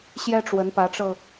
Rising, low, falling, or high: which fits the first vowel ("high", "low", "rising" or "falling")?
high